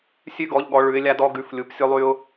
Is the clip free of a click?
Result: yes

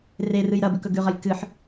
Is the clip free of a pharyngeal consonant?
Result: no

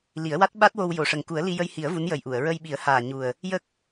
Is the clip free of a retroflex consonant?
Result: no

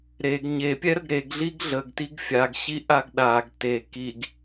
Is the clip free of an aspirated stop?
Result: yes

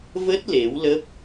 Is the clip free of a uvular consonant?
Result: yes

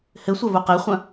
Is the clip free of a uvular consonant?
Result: no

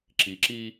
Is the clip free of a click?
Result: no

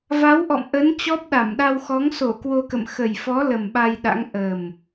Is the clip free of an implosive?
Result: no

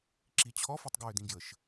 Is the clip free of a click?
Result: no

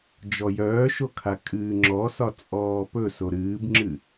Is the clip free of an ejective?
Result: no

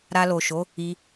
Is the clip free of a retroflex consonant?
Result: yes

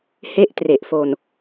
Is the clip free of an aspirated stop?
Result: yes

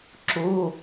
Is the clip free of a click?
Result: no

